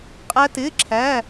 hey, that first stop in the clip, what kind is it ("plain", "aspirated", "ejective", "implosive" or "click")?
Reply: ejective